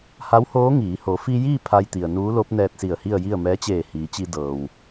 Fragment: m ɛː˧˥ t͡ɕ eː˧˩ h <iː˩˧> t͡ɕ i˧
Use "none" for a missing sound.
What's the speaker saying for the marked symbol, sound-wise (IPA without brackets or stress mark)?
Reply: iː˩˧